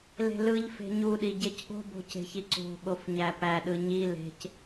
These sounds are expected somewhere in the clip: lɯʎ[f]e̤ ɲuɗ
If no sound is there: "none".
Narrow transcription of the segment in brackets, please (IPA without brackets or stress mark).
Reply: f